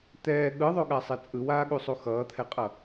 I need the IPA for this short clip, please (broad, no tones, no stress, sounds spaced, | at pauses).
t̪ ɛː ɠ ɯ ðˤ o ɠ a sˤ ɛ t͡sʼ ɯ w aː ɠ u sˤ u x ʌː t̪ʰ ɛ qʼ ʌ